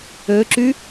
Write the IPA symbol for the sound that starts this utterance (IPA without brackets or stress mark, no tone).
ø